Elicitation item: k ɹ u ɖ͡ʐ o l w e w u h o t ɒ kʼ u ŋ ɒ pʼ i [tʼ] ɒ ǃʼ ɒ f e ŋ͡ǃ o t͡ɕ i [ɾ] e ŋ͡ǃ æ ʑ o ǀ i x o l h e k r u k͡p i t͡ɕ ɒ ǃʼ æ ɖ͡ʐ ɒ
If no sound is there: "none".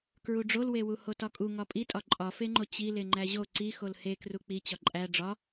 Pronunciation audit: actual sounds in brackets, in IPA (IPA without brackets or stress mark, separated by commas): tʼ, l